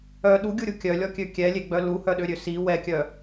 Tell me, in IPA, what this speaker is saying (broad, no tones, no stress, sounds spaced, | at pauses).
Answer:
œ ɗ u ɡʲ u ɾʲ u kʲ œ lʲ ɔ kʲ ø kʲ ɛ lʲ e ɡ͡b œ l u h œ ɗ ø ɾʲ ø s i w ɛ kʲ œ